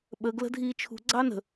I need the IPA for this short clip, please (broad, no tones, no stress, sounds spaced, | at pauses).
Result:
ɓ ə ɡ l ə̤ dʱ iː t͡ʃʰ ṳ ɡ͡ǀ ɑ n ə̤